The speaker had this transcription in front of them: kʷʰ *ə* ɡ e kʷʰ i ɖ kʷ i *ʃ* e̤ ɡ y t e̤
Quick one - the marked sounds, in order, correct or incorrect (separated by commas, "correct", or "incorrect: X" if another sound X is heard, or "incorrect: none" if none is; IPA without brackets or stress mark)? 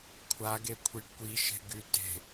incorrect: a, correct